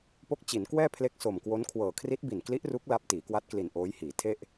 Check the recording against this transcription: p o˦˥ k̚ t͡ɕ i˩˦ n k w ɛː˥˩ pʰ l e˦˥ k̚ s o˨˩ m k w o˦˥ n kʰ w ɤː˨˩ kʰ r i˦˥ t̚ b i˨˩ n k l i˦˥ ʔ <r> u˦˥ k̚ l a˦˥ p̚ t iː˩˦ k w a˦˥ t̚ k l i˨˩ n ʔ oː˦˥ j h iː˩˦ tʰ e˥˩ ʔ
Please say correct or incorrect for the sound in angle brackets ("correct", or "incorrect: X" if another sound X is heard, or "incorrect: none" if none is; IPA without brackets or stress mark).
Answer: correct